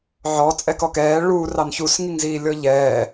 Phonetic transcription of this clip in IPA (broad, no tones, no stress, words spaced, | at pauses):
ʕɔ t͡sʼɛkɔkɛː ɭuːr ɑnçus ŋiŋziːlʲɔʎɛː